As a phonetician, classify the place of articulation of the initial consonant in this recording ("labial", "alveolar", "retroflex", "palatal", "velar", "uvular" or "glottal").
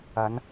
alveolar